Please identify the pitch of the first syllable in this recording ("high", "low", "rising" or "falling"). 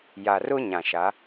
low